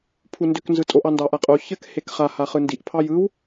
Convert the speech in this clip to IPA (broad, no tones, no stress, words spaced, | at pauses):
pʰundʏk nzɯtʼoʔ ɑndɑʔaqʼo çɘk hekχa haχɯndiʔ pʰɑjɯw